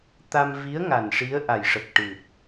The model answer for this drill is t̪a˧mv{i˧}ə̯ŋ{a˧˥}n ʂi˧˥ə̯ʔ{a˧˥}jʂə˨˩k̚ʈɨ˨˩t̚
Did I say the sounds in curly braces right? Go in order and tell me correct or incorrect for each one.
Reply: incorrect: i˧˥, incorrect: a˨˩, incorrect: a˨˩

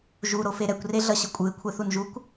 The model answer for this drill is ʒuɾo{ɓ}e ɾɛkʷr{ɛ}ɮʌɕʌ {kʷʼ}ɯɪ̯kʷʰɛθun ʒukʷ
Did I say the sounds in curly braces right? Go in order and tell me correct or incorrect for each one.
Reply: incorrect: f, incorrect: e, correct

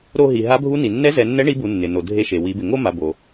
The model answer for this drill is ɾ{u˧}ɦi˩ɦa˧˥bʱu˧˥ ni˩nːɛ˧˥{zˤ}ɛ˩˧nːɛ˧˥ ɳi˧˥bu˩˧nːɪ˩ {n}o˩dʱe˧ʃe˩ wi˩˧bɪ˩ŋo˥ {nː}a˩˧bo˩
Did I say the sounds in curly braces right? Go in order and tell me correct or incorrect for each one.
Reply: incorrect: o˧, incorrect: z, correct, incorrect: m

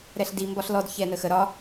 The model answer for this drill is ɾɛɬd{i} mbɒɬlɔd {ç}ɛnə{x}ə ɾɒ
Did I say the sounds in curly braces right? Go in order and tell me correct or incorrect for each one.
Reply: correct, correct, correct

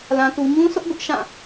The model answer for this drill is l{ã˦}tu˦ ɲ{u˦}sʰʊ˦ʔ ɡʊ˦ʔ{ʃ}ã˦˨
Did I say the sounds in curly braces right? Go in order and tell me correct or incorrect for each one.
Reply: correct, incorrect: ũ˦, correct

